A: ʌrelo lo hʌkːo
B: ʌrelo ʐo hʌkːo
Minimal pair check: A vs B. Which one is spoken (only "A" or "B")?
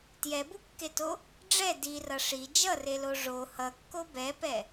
B